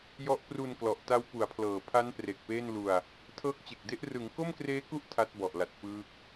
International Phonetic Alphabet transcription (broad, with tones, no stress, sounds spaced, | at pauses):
j ɔ˦˥ ʔ p r u˧ n k l ɔ˨˩ ʔ t a˦˥ w p u˩˦ a̯ pʰ l ɤː˨˩ pʰ a˦˥ n p r e˨˩ k̚ p eː˥˩ n l u˧ a̯ | tʰ ɤː˦˥ k̚ t͡ɕ e˨˩ k̚ d e˦˥ ʔ r ɯ˩˦ ŋ k o˥˩ m k r eː˦˥ k u˦˥ ʔ tʰ a˦˥ t̚ b ɔ˨˩ ʔ l a˨˩ t̚ p ɯː˦˥ k̚